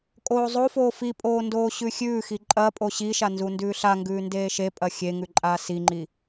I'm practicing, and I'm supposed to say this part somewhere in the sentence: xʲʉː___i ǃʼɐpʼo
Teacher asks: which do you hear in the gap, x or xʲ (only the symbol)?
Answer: x